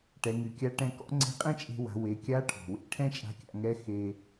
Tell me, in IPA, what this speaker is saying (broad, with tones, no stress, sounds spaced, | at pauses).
ʈ ɛ˩˧ ŋ y˩ kʲ a˧˥ ʈ ɛ̃˧ k ɔ̰˧˥ ŋ͡ǀ e̤˧˥ qʼ ɛ̃˥ t͡ʃʼ e̤˧ w a̤˩˧ w e˩˧ kʲ a˧˥ ʈʰ ɔ̤˩ w ḛ˧˥ ʈʰ ɛ̃˥ t͡ʃʼ a̤˧˥ kʲ a̰˧ ŋ ɛ˧˥ x e˧